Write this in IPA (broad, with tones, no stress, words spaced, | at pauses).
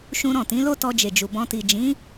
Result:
ʃũ˧ ɾɔ̃˨tĩ˨˦lo˦ tɔ˧d͡ʒe˨d͡ʒu˨ bɔ̃˧ ti˨ d͡ʒĩ˨˦